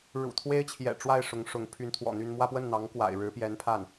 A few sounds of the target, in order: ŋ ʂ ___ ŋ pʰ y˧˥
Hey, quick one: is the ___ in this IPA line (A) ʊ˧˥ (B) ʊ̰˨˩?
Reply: A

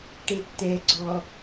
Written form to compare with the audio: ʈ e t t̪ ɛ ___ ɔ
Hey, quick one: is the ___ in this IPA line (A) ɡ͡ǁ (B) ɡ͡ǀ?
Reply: B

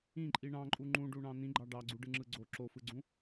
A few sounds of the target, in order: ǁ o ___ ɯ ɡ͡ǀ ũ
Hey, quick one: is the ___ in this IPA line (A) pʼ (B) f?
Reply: B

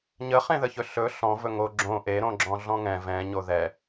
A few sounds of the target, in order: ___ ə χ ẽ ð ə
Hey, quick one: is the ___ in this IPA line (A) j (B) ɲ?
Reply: B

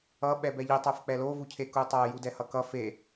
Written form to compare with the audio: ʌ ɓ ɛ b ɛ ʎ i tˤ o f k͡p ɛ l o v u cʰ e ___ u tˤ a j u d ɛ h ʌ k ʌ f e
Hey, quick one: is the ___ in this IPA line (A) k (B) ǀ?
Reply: A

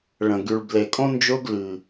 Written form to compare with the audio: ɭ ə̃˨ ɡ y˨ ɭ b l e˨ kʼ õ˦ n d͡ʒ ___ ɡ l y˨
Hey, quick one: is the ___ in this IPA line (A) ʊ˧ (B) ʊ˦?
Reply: A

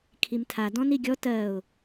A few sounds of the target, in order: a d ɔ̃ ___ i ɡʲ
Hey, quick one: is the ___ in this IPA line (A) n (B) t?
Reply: A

